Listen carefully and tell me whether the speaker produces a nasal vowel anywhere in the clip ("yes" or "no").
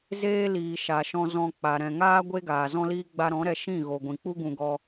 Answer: yes